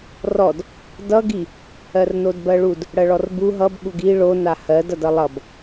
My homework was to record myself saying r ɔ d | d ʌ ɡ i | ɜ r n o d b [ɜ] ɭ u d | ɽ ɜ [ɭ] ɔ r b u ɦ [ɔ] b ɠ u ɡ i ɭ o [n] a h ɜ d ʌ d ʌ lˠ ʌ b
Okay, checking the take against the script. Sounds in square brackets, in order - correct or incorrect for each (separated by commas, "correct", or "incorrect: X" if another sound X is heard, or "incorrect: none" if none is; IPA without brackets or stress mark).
correct, correct, incorrect: ʌ, correct